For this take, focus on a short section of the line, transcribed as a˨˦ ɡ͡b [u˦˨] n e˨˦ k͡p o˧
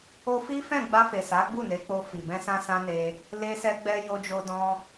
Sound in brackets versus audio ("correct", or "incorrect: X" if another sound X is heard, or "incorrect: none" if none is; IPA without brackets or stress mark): correct